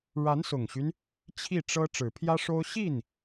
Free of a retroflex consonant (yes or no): no